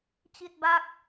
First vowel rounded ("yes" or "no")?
no